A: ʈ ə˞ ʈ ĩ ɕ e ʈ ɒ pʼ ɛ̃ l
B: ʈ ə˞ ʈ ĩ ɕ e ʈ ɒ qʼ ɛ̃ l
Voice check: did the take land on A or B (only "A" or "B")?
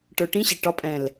A